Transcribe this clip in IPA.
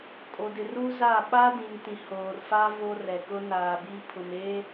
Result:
kʼ o˨ d ɪ˨ r u˦ z a˦˨ ɓ a˦ d ĩ˨ ŋ t ĩ˨ h oː˨ r f a˦ v o˦ r ɛ˨ k ʊ˦ n aː˨ b i˦ pʰ ʊ˨ m e˦

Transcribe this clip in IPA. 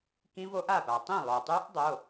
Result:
k ĩ˦˥ v o˦˥ ʔ a˥˩ p a˩ tˤ ĩ˥˩ lˠ o˩ tˤ ʉ˦˥ ʔ dˤ o˩˧˩

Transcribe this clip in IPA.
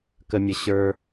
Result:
k ə˧ mʲ ə˧ ɕ ə˞˧

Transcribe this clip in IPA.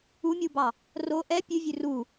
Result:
u mʲ u b ɑ | r o ʔ ɛ pʲ ʉ vʲ ʉ r u

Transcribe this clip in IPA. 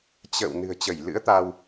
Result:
t͡ɕ ə̰ː˧˨ w n ɨ̤˨˩ ə̯ t͡ɕ ə˧˩ j l ɨ̰˧˥ ə̯ t̪ a˧ w

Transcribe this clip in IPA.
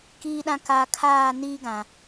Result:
k iː˨ ɗ ã˨ k a˨ kʰ aː˦˨ n iː˦ ɡ ã˨

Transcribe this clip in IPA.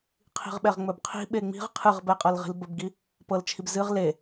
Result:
qʰ i̤ ʁ ɓ ɛ ʁ ŋ͡m ɵ b qʰ i̤ ɓ e ŋ͡m i̤ ʁ qʰ ɨ ʁ b ɛ qʼ ɤ l ʁ i̤ l b ɵ b ɡ i | p ɤ l t͡ʃʰ i b z ɨ ʁ l e

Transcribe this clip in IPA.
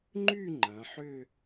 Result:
ŋ͡ǃ y˥˧ ŋ͡ǃ ɐ̃˩˧ ħ ʏ˥˧

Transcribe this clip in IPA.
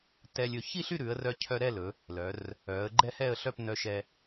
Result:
t ɛ˧ lʲ ɵ˧ ç i˥˧ ɬ y˥˧ ɾ ʉ˩˧ ə̯ r œ˧ cʰ œ˧ ɾ ɛ˥˧ l ɵ˩˧ | l œ˩˧ r | œ˩˧ ə̯ ɡ͡ǃ ɛ˥˧ h ɛ˥˧ ə̯ ɬ œ˥˧ p n œ˧ ʃ ɛ˧

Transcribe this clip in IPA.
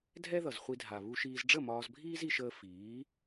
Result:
dʱ ɛ˦ ð ʌ˨ z χʷ i˧ dʱ a˨ β u˧ ʃ iː˧ z ɖ͡ʐ ə˦˨ m ɒː˧ z bʱ iː˦ z i˧ ʃ əː˧ f iː˨˦

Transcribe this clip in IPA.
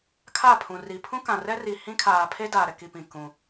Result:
kʰ a˦˨ pʰ ũ˨ r i˨ pʰ ũ˦ k ã˨ r ɛ˦ r i˨ h ĩ˦ kʰ aː˨ pʰ e˦ d aː˨ ɾ ɛ˨ k i˨ p ĩ˨ k ũ˦

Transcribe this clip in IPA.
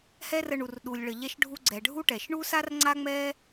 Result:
h ɛ˦ r ə˧ ɳ u˨ r ɗ u˨ lʲ ɭ ə˨ ʎ ɛ˧ ʃ ɖʱ u˧ ɡ͡ǀ ɛ˨ ɖʱ u˦ ʈ ɛ˨ ʃ ɳ u˦ s a˦ r ŋ͡ǀ a˦ ŋ͡m ɛ˦

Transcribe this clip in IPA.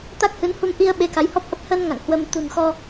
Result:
t̪ a˦˥ k̚ h ɨ˨˦ n h u˧ m ʔ i˧ ə̯ ɓ e˨˦ k a˨˦ j h ɔ˦˥ p̚ ʔ ə˦˥ p̚ h ə˧ n ŋ a̰˧˨ ŋ h w ə˧ m t̪ ṳ˨˩ n x ɔ˧

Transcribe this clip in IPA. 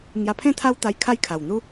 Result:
ŋ j a˧ pʰ ẽ˥˧ t̪ʰ a˦ w t̪ a˧ j kʰ a˦ j kʰ a˨˩ w n̪ u˦

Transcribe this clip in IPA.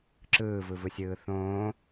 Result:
ǁ ɯː v ɯ v ɯ sʲ ɯː θ õː

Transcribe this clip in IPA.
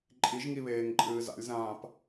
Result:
ǃʼ i ʒ ŋ i β eː ŋ ǃʼ ɨː z a̰ lʲ z ãː p

